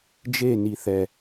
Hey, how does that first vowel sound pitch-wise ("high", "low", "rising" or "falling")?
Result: falling